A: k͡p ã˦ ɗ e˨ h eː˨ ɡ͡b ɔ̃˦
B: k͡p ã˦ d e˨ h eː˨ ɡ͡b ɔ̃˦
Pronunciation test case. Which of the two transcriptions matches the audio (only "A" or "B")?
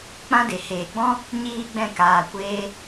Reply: B